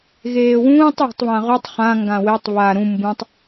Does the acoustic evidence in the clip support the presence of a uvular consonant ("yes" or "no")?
yes